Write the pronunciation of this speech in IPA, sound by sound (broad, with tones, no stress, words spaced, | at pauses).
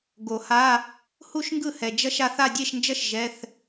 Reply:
ɡo˨˩˦ha˧˥˧ | hu˥˧ʃŋɡɯ˥˩hɛ˨ d͡ʒʌ˥ʃa˥˧θ a˥˧dʲe˥˧ʃnd͡ʒʌ˥ʃ ʒɛ˧˥˧θ